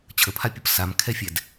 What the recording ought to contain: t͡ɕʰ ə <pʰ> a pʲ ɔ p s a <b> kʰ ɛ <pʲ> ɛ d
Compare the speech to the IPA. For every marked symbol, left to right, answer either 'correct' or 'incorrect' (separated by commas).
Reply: correct, incorrect, incorrect